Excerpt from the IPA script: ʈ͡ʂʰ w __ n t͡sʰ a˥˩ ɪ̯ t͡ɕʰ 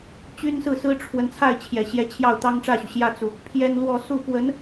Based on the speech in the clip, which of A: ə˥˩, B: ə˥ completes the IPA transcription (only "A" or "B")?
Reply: B